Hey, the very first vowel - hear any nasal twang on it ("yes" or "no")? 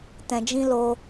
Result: yes